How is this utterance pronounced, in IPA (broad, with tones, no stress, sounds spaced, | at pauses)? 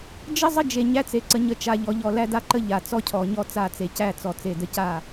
d͡ʒ ə˦ zˤ ə˦ d͡ʒ e˨ ɲ æ˦ t͡s e˨ ǀ ə˨ ɲ ə˦˨ t͡ʃ a˨ ʎ ɔ˨ ʎ ɔ˨ l æ˦ d a˦ ǃ ə˦ ʎ a˨ t͡s ɔ˦ cʰ ɔ˨ ɲ ɔ˦ t͡s a˦˨ t͡s e˨ c æ˦˨ t͡s ɔ˨ t͡s e˨ d ə˦ c a˦˨